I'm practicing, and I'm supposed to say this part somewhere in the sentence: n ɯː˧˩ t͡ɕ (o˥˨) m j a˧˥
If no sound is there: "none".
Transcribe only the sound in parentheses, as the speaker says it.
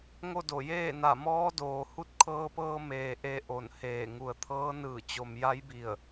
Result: o˩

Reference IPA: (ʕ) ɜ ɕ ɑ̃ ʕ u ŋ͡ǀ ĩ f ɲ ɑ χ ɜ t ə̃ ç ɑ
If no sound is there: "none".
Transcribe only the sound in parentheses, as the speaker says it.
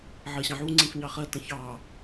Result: ʕ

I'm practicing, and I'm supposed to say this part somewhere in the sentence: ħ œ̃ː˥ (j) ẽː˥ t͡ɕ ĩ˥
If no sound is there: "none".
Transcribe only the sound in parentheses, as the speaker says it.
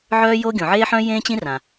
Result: j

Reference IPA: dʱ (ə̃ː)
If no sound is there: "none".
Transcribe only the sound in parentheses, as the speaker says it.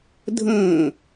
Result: ə̃ː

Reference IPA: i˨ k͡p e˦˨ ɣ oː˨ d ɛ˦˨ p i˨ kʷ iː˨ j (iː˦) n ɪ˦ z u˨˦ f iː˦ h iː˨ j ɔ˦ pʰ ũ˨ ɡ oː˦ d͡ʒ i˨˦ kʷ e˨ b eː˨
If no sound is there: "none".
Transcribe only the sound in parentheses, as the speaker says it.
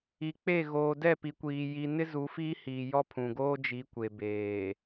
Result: i˦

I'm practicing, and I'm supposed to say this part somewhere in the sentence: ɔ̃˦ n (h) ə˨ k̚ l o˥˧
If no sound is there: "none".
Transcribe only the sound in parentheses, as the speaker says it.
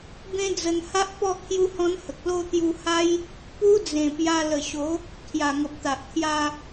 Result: h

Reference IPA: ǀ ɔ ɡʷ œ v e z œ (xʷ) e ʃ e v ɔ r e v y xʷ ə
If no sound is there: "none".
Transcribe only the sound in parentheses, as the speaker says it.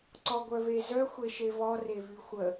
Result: xʷ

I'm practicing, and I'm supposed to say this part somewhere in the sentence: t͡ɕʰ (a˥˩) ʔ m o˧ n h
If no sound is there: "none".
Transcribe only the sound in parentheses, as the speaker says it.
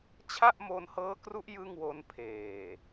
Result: a˥˩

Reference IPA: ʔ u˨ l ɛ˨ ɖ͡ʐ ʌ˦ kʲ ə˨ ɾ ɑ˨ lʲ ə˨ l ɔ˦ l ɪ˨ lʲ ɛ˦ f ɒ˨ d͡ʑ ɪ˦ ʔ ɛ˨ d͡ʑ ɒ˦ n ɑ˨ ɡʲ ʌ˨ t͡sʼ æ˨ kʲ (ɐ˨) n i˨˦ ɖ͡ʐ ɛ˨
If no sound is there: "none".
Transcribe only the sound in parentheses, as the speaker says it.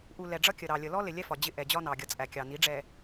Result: ɑ˨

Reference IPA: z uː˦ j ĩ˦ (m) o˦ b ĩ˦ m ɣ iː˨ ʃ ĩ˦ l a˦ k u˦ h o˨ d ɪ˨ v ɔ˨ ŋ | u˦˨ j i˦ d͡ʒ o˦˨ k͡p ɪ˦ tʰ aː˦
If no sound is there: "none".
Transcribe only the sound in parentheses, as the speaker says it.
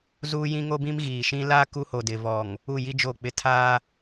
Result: ŋ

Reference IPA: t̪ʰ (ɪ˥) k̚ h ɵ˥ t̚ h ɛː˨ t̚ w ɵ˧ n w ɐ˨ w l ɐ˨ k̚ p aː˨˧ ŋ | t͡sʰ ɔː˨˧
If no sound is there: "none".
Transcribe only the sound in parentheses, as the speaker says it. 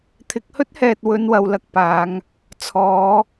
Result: ɪ˨˥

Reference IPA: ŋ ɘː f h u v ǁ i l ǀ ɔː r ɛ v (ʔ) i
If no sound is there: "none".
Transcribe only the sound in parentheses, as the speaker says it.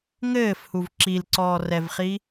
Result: χ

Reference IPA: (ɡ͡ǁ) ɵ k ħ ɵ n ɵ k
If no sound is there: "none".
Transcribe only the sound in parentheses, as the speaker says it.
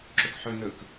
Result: ǁ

